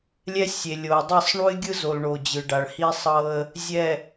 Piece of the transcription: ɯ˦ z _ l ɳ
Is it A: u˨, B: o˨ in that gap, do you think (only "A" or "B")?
B